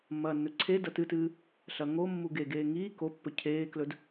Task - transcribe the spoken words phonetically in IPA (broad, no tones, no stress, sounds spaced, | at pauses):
mː ɐː nː ɵ ǀʰ e d ɐ t ɨ t ɨː | ɬ ɐ ŋ o mː u ɡ e ɡ eː ŋ iː k o pː ɵ cʰ eː k l ɵ d